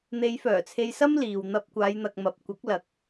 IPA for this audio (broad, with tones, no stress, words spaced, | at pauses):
n̪e˨˧jfœː˨˩t͡sʰe˧jsɐ˥m liː˨w n̪ɐ˧p̚kʷaː˨˧jn̪ɐ˨k̚mɐ˨p̚ kʷɐ˨˥k̚lɐ˨k̚